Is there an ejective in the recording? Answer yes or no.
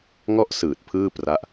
no